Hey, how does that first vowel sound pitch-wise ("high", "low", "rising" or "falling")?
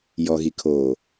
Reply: low